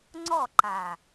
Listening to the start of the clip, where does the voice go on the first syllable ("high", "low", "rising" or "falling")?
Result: falling